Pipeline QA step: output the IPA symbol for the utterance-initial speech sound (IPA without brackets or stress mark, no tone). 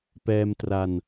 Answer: p